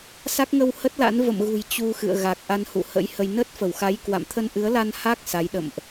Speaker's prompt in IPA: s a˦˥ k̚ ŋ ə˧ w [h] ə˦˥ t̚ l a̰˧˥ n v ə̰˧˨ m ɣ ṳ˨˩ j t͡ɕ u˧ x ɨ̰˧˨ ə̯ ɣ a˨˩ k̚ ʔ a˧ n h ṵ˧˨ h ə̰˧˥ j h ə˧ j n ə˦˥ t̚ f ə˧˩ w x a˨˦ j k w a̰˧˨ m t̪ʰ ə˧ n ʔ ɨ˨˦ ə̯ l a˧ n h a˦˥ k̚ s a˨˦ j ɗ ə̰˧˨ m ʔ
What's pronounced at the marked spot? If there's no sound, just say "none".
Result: h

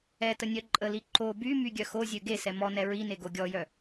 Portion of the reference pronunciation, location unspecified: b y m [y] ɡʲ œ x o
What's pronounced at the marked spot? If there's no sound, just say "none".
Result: y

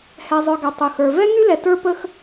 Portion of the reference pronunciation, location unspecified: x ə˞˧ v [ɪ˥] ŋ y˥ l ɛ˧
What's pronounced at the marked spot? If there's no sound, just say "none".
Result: ɛ˥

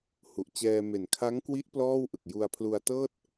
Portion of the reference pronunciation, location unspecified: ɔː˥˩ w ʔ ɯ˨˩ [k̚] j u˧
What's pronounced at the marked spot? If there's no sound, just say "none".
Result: k̚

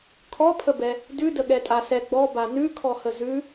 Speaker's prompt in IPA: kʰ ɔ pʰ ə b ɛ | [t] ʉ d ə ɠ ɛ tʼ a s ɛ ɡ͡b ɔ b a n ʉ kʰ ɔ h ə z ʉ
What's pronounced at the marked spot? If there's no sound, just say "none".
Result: d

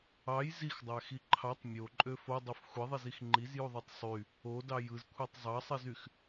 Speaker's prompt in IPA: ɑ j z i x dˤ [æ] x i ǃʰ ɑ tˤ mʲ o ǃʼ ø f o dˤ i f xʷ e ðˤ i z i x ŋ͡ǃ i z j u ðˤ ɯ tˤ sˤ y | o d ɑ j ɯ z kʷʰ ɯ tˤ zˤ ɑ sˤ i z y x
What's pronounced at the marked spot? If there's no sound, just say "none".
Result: æ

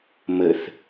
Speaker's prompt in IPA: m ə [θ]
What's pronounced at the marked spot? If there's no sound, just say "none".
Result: θ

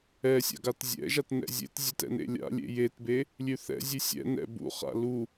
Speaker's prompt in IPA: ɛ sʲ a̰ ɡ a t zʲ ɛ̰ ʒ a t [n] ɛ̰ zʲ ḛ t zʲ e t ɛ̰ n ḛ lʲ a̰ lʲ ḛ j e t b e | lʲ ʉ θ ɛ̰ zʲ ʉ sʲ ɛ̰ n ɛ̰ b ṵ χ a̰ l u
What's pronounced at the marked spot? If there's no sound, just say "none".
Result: n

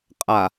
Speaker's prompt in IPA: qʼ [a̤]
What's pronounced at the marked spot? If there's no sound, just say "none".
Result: a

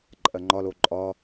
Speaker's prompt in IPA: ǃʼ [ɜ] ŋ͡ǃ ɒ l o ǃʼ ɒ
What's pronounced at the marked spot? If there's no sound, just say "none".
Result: ɜ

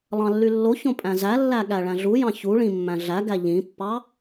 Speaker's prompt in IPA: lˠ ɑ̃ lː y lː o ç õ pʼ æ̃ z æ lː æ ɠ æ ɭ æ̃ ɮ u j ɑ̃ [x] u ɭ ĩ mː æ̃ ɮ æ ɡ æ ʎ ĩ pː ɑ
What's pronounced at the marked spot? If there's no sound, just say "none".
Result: ç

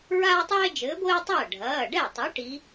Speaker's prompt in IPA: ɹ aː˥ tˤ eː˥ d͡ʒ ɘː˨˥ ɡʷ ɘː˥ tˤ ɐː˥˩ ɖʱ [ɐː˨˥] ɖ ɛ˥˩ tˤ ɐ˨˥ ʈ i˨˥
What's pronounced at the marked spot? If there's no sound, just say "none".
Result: ɐː˩˧˩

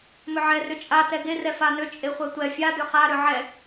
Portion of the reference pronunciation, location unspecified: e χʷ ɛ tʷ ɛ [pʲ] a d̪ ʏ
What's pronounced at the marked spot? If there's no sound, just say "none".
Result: fʲ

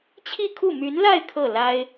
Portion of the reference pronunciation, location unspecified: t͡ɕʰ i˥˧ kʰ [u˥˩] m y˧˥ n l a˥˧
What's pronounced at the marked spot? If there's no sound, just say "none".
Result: u˥˩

